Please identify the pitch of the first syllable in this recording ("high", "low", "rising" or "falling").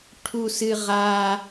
high